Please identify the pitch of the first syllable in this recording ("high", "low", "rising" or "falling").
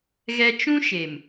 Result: high